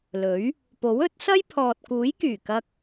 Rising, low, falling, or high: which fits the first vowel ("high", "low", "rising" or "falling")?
rising